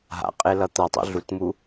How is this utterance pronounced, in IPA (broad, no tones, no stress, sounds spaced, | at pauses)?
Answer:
ɦ a̰ qʼ e l ʌ t̪ ʌ tˤ ṵ ɮ u t m u